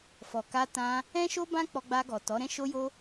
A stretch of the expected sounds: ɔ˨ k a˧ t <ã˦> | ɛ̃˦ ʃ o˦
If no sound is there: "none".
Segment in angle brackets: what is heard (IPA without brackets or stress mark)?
ã˧